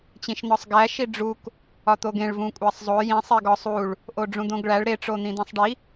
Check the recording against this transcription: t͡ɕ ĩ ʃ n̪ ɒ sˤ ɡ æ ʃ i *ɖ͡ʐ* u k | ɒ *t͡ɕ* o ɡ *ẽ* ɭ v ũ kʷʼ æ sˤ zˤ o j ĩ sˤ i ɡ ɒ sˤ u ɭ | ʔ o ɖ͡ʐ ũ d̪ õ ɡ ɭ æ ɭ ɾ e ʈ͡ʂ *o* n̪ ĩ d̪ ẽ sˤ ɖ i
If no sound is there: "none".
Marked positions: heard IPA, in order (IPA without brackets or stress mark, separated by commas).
ɖ͡ʐ, t̪, ẽ, o